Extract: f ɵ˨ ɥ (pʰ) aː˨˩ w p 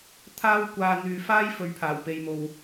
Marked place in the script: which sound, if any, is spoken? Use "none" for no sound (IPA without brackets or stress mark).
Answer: pʰ